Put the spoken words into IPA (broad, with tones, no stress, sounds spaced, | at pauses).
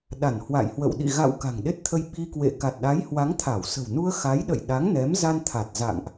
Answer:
ɗ a˧˩ n h w a̰˧˨ j h w ə̰˧˨ w ɗ ḭ˧˨ ɣ a̰˧˨ w k a̤˨˩ ŋ ɗ e˦˥ t̚ t̪ʰ ə˧ j ɓ i˧ k w ḛ˧˨ k a˨˩ t̚ ɗ a˨˦ j h w a˨˦ ŋ t̪ʰ a˧˩ w s ə̤˨˩ w n u˧ ə̯ x a˨˦ j ɗ ə̰˧˨ j ɗ a˨˦ ŋ n ɛ˨˦ m z a˧ n t̪ʰ a˨˩ t̚ z a̰˧˨ ŋ ʔ